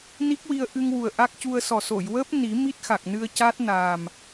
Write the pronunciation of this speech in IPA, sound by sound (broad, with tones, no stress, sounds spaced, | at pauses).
n i˦˥ k̚ w i˧ ə̯ ʔ ɨ˧ ŋ w u˨˩ ə̯ ʔ a˦˥ k̚ c u˧ ə̯ s ɔ˨˩ s o˨˩˨ j w əː˦˥ p̚ n i˨˩˦ m i˦˥ t̚ x a˨˩ k̚ n ɨ˧ ə̯ c a˦˥ t̚ n a˨˩ m